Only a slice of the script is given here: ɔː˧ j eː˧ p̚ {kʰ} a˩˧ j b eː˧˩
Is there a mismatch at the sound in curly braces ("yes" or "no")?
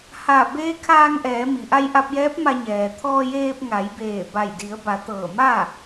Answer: yes